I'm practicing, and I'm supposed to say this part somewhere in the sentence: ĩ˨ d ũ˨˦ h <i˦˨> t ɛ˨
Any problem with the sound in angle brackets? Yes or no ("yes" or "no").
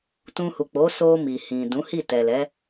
no